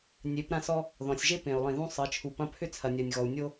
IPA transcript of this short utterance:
nʲ e˩˧ p ɾ ã˧ s ɔ˧ | ð ɔ̃˩ sʲ ʒ e˥ p ẽ˩ u̯ lˠ ĩ˩ ð ũ˧ sˤ ɜ˩˧ t͡ʃʰ u˩ p ɐ̃˧˥ pʰ ʏ˥ t͡sʰ ɐ˩ nʲ ɜ˩ nʲ ɣ ɔ˩ u̯ nʲ o˧

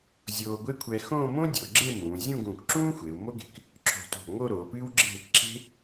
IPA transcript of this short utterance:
zʲ oː˧ ɡʷ e˥ kʷʰ ɛ˧ x õː˥˧ m õ˥ dʲ o˩˧ ɡ͡ǁ e˥˧ m ũː˩˧ zʲ ũ˥˧ ɡ ũː˧˩ k ǁ ũː˥ xʷ e˩˧ u̯ m o˥ ɡ e̤˧˩ k | ǁʰ o̤˧˩ t o̤˧˩ ŋ o˥˧ ɾ oː˩˧ p ɨː˥ w ɡ͡ǁ e̤˥˧ | ǁ e̤˥

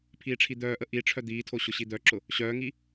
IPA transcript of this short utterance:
pʰ iː ʈ͡ʂʰ i d̪ œː ʔ ə ʔ i ʈ͡ʂʰ œ d̪ iː tʰ o ɕ ʊ ɕ i d̪ œ ǁ ʊ | ɕ œː ŋ i

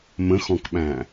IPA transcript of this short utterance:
m ə̃ x ɔ̃ k ɓ æ̃

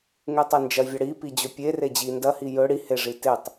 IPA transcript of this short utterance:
ŋ e tˤ e n d͡ʒ ɐ vʲ ɐ ɽ i p i d͡ʑ ɵ pʲ e r e d͡ʑ i n d ɐ h i j ɵ ɽ i h e ʐ i t e tˤ

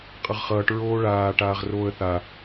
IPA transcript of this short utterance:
qʼ ʌ ʁ χ ʌː ʈ ɹ oː ɭ aː ʈ aː ʁ r oː ə̯ θ a

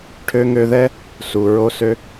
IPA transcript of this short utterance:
ʈʰ ø˧ ŋ ø˧ ð ɛ˦ | s u˨ ɹ o˦ s ø˦

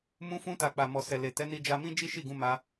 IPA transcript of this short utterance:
m ũ˧ f ũ˧ t a˨ k͡p a˨ m ɔ˨ s ɛ˨ l e˨ t ɛ˨˦ n i˧ d͡ʒ a˧ m ĩ˦ d͡ʒ i˦ ʃ i˦˨ ɡ ũ˧ m a˧

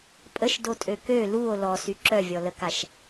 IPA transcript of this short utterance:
pʼ ə ʃ d o tʼ ø k ø l u o̯ l ɔ s y ǁ œ vʲ ɔ l ə k a ʃ

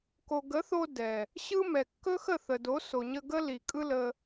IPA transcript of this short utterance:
k o˨ ɡ ə˨˦ θ o˧ d ɛ˨ | ɕ ɯ˦ m ɛ˨ kː ɵ˦ x ə˦˨ θ ə˨ d o˨˦ s o˨ ɲ ə˧ ɡ ə˦ l i˨ kʼ ɯ˦ l ə˧

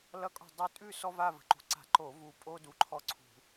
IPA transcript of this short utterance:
l ʌ˦ kʼ ɔ̤˦˨ dˤ u˦˨ tʼ ʉ˦˨ s ɔ˦ v a˦˨ v ə̤˨˦ ǃ ṳ˨˦ ǀ a̤˧˩˧ ǃ o˧˩˧ v u˦˨ pʼ o˦ d u˨˦ ǃʰ ɔ˦˨ ǀʰ ṳ˧˩˧

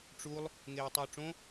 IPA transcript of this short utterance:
ʈ͡ʂ u lˠ | ŋ eː tˤ uː ʈ͡ʂ õ

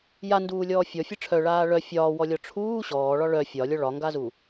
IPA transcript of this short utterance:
j a n d uː lʲ ɔː fʲ ɔ fʲ ɨ ʈ͡ʂʰ œ ɭ aː ɭ œ fʲ ɒː w ɔ lʲ ɔ ʈ͡ʂʰ uː ɕ ɔː ɭ ɒ ɭ œ fʲ ɒ lʲ ɔ ɭ ɒ ŋ ɡ a z u

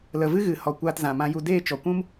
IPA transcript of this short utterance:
l ə˨ v ɨ˦ ɣ ɨ˨ h ɔ˨ kʷ aː˧ t z ã˨ m ã˧ j u˧ d eː˦˨ t͡ʃ ɔ˨ kʷ ũ˦ m

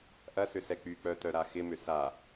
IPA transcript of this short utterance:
ʔ ɐ s ʏ s ɛ k͡p y k͡p œ t œ ɾ a x ɪ m ʏ s a

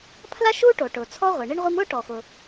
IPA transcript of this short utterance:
pʰ l a˥ ʃ uː˥ ʈ o˩ ʈ ʊː˩ t͡sʰ ɔ˥ ʁʷ e˩ ɳ i˥ ɳ ʁʷ i˥ m ʊː˥ ʈ ɔ˩ x ʊ˩

